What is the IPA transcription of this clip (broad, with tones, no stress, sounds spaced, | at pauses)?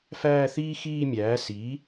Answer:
f æː˥˧ θ iː˥ x iː˥˧ mʲ æː˩˥ s i˩˥